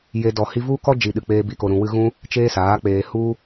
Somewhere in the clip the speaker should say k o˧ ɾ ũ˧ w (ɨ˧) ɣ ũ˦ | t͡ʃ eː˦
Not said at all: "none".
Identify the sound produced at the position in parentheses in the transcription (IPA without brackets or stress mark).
ɨ˧